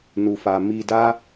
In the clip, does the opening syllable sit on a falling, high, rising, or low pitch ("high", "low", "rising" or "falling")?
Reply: low